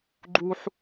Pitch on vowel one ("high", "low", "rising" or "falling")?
high